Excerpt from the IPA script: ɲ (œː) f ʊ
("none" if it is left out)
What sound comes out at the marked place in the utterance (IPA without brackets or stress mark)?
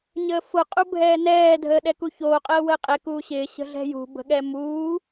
əː